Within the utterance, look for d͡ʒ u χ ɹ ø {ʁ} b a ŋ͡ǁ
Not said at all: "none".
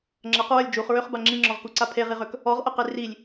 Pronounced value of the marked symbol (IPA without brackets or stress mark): χ